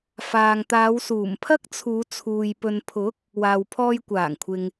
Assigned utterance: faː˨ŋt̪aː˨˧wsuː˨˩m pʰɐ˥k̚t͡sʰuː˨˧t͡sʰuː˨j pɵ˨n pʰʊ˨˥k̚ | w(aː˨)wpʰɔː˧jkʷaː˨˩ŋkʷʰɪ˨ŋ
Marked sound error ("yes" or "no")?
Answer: no